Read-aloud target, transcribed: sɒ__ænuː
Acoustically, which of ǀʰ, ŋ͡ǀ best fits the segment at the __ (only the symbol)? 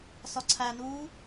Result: ǀʰ